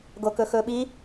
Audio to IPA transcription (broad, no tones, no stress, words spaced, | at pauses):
ɡokɵxɵɓi